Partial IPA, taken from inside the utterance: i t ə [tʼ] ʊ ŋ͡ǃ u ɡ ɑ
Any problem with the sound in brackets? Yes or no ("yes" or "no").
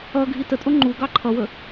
no